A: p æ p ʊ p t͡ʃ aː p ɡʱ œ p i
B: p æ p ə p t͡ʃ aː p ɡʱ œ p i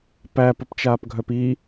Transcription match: B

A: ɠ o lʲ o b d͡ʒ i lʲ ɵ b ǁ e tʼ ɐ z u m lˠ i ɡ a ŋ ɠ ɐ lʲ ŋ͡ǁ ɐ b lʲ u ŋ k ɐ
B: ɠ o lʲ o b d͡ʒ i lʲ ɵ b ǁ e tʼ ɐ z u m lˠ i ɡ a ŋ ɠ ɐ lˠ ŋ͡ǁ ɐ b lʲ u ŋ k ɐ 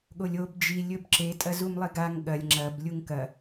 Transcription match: A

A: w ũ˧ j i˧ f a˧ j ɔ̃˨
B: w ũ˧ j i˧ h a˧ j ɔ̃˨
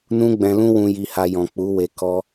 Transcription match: B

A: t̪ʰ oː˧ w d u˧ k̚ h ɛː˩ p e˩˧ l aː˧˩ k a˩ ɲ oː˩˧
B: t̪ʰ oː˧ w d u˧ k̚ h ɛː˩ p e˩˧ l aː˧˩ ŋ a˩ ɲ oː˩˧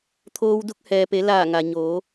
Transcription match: B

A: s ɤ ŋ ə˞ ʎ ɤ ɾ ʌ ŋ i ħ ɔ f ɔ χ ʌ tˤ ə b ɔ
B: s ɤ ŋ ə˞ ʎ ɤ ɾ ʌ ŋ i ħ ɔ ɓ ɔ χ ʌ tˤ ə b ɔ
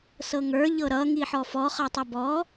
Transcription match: A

